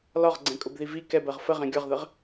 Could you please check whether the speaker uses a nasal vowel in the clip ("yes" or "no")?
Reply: yes